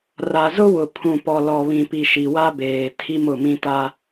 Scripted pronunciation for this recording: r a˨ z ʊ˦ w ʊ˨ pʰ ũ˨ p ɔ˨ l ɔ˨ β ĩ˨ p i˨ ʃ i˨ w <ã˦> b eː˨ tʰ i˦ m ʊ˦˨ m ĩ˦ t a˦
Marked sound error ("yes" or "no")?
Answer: yes